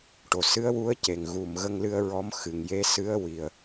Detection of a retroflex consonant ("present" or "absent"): present